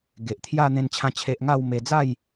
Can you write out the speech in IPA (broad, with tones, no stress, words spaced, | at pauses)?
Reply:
ɡe˨ʔt̪ʰja˥˧ n̪ẽ˦nt͡ɕʰã˦t͡ɕʰe˦ʔ ŋa˥˧w me˧d͡za˥˧j